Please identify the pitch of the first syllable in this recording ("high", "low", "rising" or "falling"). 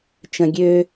low